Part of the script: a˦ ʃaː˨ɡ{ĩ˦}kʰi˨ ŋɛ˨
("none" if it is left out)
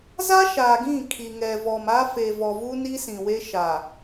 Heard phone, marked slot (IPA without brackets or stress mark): ĩ˦˨